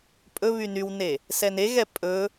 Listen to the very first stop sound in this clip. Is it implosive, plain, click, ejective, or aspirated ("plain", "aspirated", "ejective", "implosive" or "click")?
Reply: ejective